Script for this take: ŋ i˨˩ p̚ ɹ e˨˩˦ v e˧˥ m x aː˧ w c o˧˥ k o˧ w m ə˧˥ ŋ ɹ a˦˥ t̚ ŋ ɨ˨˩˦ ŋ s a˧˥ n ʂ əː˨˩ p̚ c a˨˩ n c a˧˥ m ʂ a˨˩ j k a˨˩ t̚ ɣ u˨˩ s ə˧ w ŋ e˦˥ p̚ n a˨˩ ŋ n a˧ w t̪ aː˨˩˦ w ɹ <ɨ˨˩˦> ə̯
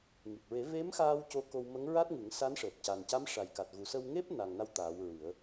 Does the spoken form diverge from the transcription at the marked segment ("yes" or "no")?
no